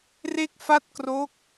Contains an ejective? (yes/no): no